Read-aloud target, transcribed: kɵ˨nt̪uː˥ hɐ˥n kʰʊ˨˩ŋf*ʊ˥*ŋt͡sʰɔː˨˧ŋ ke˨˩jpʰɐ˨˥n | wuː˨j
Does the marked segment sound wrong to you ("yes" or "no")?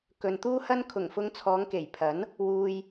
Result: yes